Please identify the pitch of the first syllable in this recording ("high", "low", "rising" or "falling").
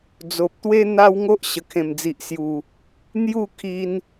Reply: low